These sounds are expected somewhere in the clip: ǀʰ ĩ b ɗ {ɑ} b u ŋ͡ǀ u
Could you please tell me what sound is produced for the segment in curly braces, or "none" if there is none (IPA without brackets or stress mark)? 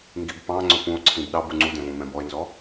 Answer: ɑ